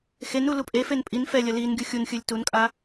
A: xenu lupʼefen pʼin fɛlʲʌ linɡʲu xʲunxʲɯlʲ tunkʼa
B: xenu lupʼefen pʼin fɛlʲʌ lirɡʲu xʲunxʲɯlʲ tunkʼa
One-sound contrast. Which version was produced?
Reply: A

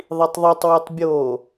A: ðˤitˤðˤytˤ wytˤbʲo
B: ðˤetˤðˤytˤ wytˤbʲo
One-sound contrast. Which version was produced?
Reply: A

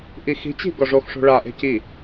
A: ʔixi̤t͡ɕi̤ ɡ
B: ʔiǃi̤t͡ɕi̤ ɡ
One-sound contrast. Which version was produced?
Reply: A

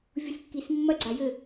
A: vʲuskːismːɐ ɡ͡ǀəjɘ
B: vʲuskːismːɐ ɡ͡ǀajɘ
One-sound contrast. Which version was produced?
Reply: B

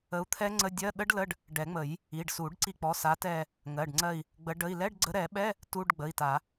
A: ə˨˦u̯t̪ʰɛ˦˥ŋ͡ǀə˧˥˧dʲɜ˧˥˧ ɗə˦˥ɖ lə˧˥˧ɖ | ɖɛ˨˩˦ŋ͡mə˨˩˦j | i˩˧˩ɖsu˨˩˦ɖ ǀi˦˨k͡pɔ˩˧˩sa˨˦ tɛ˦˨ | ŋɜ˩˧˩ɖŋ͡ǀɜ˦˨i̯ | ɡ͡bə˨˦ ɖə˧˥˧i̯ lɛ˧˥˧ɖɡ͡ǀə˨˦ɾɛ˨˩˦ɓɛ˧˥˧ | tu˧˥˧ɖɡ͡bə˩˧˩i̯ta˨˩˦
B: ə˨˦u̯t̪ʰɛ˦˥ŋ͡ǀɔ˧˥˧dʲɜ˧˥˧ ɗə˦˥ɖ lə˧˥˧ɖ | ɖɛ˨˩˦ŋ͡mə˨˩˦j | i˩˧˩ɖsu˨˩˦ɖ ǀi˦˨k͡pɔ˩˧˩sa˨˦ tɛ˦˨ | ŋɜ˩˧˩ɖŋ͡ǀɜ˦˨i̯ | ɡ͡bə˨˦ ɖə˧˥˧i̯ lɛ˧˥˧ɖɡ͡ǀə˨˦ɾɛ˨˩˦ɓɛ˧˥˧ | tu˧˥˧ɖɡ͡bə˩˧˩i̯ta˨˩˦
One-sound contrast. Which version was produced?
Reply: A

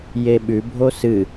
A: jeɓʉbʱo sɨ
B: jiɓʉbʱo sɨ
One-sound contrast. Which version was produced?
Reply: A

